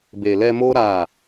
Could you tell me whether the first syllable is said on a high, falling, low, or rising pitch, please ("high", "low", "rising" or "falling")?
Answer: low